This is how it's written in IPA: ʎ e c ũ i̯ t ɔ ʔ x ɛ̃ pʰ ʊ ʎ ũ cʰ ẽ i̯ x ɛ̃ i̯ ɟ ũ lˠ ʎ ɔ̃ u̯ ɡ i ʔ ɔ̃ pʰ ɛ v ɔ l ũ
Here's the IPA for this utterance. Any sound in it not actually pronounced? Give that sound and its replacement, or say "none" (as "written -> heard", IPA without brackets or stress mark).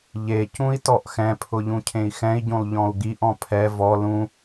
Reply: none